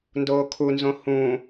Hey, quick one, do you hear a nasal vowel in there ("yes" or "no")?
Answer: yes